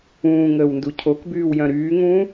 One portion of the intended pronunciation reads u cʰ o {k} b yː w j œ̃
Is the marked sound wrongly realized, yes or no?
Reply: no